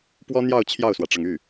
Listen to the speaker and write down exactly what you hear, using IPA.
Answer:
p w ɔ˥ n̪ j ɑ˥˧ ʊ̯ t͡ɕʰ j ɑ˥˩ ʊ̯ s w ä˩ ʈ͡ʂ ɤ˩ ŋ y˥˩

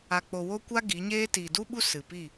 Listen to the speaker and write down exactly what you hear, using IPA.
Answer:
a˨ k͡p o˨ w o˦ kʷ a˦ ɡ i˨˦ ɲ eː˦ t iː˨ d u˦ ɓ u˦ s ɨ˨ p i˦˨

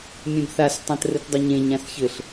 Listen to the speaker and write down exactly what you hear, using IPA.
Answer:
mʲ ẽ b θ a s tˤ ã t r ɘ t dˤ ɐ ɲ ẽ ɲ ã s ç ɘ ɬ

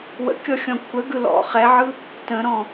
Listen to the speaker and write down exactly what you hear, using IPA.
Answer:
w ə̰ kʲ ɔ xʲ ɔ̃ kʷʰ ə ɡ ɯ l ɔ̰ χ ɛ ʕ ɯ | t ə̃ ɾ ɔ̃

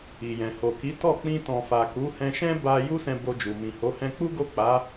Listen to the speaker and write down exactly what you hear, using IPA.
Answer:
i˨ j ɛ̃˨ h o˨ k i˨˦ t ɔ˦˨ k͡p ĩ˧ t ɔ̃˨ f a˨ k u˨˦ h ɛ̃˧ ʃ ɛ̃˦ b a˧ j u˦ s ɛ̃˧ b o˧ d͡ʒ u˨ m ĩ˨ h o˨˦ h ɛ̃˧ k͡p u˦ ɡ o˦˨ k͡p a˨˦

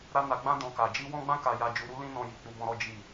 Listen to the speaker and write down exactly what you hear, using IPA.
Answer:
ɾ a˦ n a˧ ɡ͡b ã˦ d ɔ̃˧ k a˨ d͡ʒ i˧ w ɔ̃˦ ɡ͡b ã˦ k a˧ j a˧ d͡ʒ u˧ ɾ u˦ l ĩ˦ n ɔ̃˧ j i˨ k͡p u˧ b ɔ̃˧ ɾ ɔ˦ d͡ʒ i˦˨

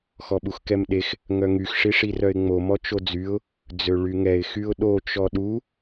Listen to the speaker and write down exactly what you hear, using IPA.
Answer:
x ɔ ɓ u x k ɛ m ɗ e x | ŋ œ ŋ y x ʂ i ʂ i r œ ɪ̯ ŋ͡m o m ɔ t͡ʃ o d͡z y ʊ̯ | d͡z ø ɭ y ŋ ɛ ɪ̯ x y ʊ̯ ɗ o t͡ʃ ɔ ɗ u

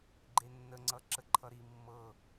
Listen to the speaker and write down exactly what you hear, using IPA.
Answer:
ɡ͡ǃ e nː ə ŋ͡ǀ ʌ ǁ ə ǃʰ ʌ ɾ i mː ɤ

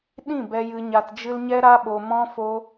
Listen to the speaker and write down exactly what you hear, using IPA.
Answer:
ɗ ĩ˦˨ b ɛ˧ j ɨ˧ ɲ a˧ t d͡ʒ ɨ˦ l ɲ ɛ˦ ɾ a˦ ɓ o˧ m ɔ̃˦ f o˦

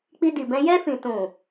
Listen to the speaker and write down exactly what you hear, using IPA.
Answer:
k͡p i˧ d i˨ b ɛ̃˧ j ɛ˧ f ĩ˨ t ũ˨

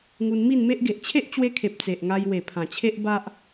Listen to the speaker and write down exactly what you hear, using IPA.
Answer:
ŋ u˧ n m i˥˧ n m e˦ ʔ ɡ e˨ ʔ t͡ɕʰ e˦ ʔ t͡ɕ w e˧ kʰ e˨ p̚ t͡s e˨ ʔ ŋ a˧ j w e˨˩ pʰ ã˨˩ t͡ɕʰ e˦ ʔ b a˦ ʔ

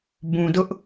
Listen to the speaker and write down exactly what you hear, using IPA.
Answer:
b ũ˨ d ʊ˦ ʔ

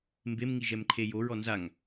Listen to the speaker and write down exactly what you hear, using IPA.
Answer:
m b e m ŋ i ʒ ɛ m ǃʰ e j o ɹ ɔ n z a ŋ

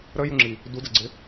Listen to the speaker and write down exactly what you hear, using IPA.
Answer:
ɾ ə j u ŋ͡ǁ i | d u d ə ɡ͡ǀ ɪ

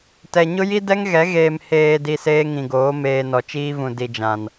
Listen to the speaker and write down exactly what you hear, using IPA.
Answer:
t ɛ˨ ɲ ʊ˦ j i˦ d ɛ˦ ŋ ɣ ɛ˨˦ ɣ eː˨ m h eː˨ d i˨ s eː˦ ŋ ĩ˨ ɡ oː˨˦ m eː˨ n ɔ˨ t͡ʃ iː˦ v ũ˨ d i˨ d͡ʒ ã˨ n

